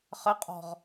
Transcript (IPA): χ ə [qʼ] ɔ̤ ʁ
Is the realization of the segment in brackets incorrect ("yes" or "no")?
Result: no